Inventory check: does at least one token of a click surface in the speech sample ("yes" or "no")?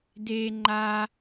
yes